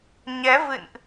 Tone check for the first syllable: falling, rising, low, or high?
rising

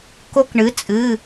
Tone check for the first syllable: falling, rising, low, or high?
rising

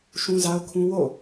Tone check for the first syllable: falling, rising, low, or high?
high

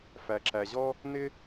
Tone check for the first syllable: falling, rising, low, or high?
low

